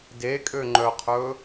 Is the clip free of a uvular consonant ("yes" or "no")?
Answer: no